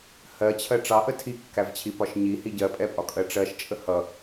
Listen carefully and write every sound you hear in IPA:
h ɜ t͡ɕʰ ɜ ʈ͡ʂ ɑ ʔ ə tʰ i kː æ v t͡ɕʰ i p ɒ ʃ ɲ i h i ɟ ɜ pʼ ɛ pʼ ɒ kʼ ɜ ʈ͡ʂ ɜ ʃ t͡ʃʼ ə h ʌ

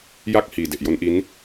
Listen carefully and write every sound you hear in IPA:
j a˥˩ k̚ h iː˨˩ d e˨˩ ʔ j o˦˥ n ʔ i˦˥ n

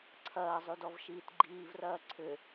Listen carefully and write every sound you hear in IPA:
ǀʰ ɐː zˤ y d ɔ v ʃ iː t ɡ͡ǃ iː v r ɐː ǀʰ ʏ

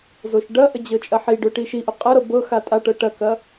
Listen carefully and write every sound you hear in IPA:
z o ʃ ɖ ɐ ʔ ə d͡ʑ ɤ t͡ʃʼ ɐ ħ i ɖ o ʈ i ʃ i ʔ ʊ qʼ ɐ ɾ ɤ b ɤ x a tʼ a ʈ ɤ ʈ ɐ k ɐ

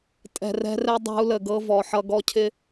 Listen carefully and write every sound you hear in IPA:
tʼ ɛ̤˨ r ɛ̤˦ r ɛ˦ dˤ a̤˦ u̯ l ə˨ ɡ ɤ˦ v ɔ˨ ħ ʌ˦ ɡ ɔ˦ cʰ ɪ˦

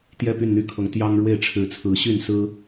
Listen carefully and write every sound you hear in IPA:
t̪ j ɛ˥˨ p y˥˨ n n̪ y˥˨ kʰ ɤ˨˦ ŋ t̪ j ɑ˦ ŋ ɻ w e˥˨ ɪ̯ ʈ͡ʂʰ ɻ̩˨˦ t͡sʰ ɹ̩˨˦ ɕ y˥˨ n s ɹ̩˦

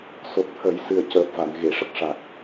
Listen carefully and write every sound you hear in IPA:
s o˨˩ t̚ t̪ʰ ə˨˩˦ j s ɨ˨˩ ə̯ c əː˨˩ p̚ v a˨˩˨ n ɣ e˨˩˨ ʂ ə˦˥ k̚ ʂ a˨˩ k̚

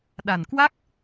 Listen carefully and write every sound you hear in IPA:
ɗ a˨˩ n k w a˦˥ k̚

